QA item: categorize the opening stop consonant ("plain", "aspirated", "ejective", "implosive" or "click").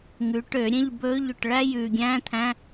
plain